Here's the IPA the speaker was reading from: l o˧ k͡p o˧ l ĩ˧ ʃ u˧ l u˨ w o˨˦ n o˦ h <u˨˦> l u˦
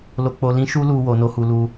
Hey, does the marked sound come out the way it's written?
no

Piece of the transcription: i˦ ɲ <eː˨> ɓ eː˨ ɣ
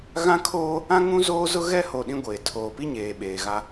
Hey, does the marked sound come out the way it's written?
yes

